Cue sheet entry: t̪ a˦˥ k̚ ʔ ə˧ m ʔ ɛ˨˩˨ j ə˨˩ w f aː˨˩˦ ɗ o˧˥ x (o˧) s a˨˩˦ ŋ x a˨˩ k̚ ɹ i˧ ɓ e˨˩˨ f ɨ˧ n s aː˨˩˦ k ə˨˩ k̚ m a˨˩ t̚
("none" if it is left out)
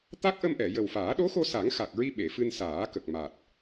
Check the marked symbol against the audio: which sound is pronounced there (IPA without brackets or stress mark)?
o˧